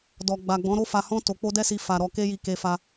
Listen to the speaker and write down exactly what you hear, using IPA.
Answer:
d ɔ˨ ɡ͡b a˨ ɡ͡b ɔ̃˨˦ ɾ o˦ f a˧ h ɔ̃˦ t o˧ k͡p o˦ d ɛ˦ s i˧ f a˧ ɾ ɔ˧ k e˦ j i˧ k e˧ f a˧

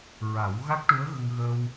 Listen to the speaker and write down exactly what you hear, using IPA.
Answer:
ɹ a˨˩˦ w ɣ a˦˥ k̚ ʈ u˧˥ ə̯ ɣ ə˧ ŋ ɣ ə˧ w

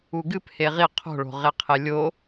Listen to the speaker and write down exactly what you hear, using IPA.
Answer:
u ɡ ɨ p h e ʁ i qʰ o̤ ɭ o̤ ʁ e qʰ e lʲ o

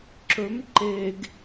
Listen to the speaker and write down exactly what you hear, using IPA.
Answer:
ǁ ɵ m ǃ e ɡ

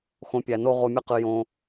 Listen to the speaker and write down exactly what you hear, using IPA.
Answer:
x õ˧ pʲ æ˨ n o˦ ʁ o˧ mʲ ɨ˦ q ɨ˧ j õ˧

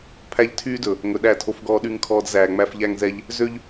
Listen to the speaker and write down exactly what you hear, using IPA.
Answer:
pʰ æ˦ ʎ tʰ yː˦ d ɵ˨ | ŋ ɵ˨ ɗ æ˦˨ tʰ o˨ f ɡ ɔː˨ ɗ y˨ ŋ kʰ ɔː˨ d z æː˨ ŋ͡m æ˦ f ʎ æ˦ ŋ z ɛ˦ ʎ | z ø˦ ʎ

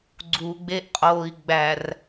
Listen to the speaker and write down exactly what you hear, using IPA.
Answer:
ɡ͡ǀ u ɡ͡b e ʔ qʼ oː i̯ ɡ͡b æ r

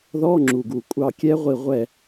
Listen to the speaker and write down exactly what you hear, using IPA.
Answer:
ð ɔ˧˥˧ ŋ͡ǁ u˨˩ ɡ u˨˩ kʷʼ ɑ˦˨ kʲ ɛ˦˥ ʁʷ i˦˨ ʁʷ ɛ˦˨

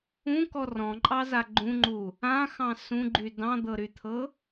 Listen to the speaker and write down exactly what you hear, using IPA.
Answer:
ũ k ɔ r ɔ̃ ǃʼ ɑ z a ɡ͡ǃ ũ ŋ͡ǃ u | ã x ɑ̃ s ũ ɡ͡ǃ y d ɑ̃ d̪ ɤ ɾ y t̪ʰ ɤ

